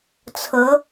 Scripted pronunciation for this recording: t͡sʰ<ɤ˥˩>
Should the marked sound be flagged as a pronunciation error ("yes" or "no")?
yes